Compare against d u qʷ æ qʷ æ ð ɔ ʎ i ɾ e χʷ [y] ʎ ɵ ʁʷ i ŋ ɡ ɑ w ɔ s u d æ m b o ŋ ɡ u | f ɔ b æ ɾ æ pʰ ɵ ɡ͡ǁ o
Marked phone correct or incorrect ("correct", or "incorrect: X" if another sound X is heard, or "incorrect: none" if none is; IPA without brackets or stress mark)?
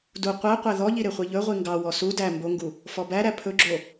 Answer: incorrect: i